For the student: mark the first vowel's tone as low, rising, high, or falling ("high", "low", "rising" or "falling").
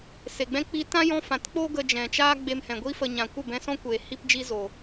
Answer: low